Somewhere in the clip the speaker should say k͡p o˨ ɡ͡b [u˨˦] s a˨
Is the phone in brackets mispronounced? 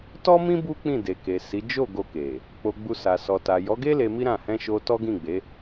yes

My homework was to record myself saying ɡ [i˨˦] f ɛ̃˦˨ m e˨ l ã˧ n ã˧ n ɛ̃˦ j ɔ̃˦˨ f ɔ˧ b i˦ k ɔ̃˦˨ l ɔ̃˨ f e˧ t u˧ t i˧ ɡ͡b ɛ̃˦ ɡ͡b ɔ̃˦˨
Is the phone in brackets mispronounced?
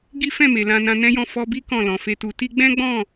yes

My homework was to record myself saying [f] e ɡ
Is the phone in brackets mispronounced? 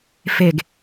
no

